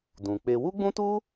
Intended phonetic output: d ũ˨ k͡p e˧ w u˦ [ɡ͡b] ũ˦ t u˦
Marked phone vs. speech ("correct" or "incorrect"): correct